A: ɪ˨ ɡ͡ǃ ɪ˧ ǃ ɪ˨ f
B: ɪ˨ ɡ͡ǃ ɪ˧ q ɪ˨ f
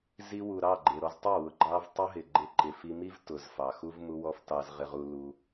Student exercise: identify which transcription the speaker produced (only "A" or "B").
A